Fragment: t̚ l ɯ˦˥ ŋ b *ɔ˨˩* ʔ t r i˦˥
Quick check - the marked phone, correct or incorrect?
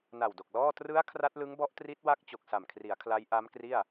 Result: incorrect: ɔ˦˥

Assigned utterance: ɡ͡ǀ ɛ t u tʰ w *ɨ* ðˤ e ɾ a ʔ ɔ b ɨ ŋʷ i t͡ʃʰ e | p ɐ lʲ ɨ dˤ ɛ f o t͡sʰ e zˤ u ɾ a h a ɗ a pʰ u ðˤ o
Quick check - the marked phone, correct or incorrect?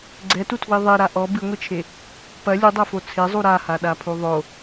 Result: incorrect: i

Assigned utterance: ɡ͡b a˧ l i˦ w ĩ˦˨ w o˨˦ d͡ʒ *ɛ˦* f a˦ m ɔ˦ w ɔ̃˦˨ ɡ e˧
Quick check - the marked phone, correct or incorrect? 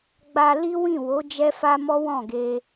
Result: correct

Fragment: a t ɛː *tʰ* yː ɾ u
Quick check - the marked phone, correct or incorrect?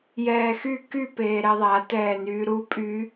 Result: incorrect: n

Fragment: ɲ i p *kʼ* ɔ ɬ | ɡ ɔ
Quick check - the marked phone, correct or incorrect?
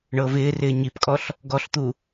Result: correct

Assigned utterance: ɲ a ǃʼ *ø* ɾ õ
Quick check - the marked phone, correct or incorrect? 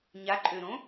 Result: correct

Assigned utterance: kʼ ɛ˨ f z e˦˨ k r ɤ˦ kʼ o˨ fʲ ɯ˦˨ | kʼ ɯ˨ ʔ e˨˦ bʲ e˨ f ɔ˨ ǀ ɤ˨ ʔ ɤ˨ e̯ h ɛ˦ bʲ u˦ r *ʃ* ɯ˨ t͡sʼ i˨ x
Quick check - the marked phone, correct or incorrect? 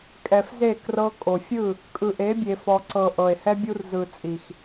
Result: incorrect: z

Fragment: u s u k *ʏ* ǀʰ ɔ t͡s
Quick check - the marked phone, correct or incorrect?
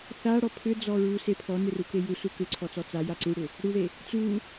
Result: correct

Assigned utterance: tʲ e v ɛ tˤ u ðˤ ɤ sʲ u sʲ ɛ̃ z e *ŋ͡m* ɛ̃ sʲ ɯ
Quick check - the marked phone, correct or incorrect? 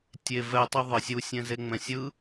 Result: correct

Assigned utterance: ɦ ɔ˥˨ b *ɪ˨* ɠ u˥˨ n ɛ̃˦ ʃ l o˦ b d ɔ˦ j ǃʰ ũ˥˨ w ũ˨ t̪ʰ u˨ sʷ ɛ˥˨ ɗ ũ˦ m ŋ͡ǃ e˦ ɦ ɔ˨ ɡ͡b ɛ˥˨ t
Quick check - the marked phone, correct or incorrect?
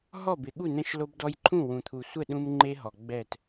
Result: correct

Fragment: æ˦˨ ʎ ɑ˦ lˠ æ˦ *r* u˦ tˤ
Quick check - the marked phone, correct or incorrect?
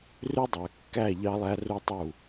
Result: correct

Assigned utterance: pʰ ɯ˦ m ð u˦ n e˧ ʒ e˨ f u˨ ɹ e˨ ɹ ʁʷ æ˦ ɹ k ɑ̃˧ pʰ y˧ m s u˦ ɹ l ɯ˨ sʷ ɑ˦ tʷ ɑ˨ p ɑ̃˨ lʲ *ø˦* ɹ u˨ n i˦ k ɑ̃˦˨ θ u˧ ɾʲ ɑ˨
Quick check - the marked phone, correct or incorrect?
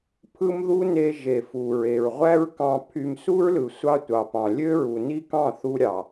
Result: correct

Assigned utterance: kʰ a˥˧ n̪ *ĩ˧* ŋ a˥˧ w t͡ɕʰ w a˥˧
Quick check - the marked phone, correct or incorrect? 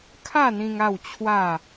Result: correct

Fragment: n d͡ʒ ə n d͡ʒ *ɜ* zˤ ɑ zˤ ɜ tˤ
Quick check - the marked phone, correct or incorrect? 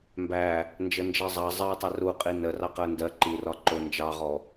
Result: correct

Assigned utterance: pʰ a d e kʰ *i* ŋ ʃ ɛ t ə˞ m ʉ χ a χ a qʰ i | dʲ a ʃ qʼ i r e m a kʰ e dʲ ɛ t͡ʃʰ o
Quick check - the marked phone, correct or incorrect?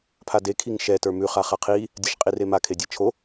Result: correct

